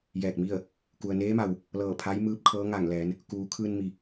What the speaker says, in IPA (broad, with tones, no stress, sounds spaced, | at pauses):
j ɛː˧˩ k̚ m i˥˨ ə̯ | k u˩ ə̯ n eː˧˥ m a˩ w | l ɤː˧˩ pʰ a˧˥ j m ɯː˧˥ p̚ kʰ ɤː˧˥ ŋ a˧˩ ŋ l ɛː˩˧ n | k uː˩˧ kʰ ɯː˧ n m i˩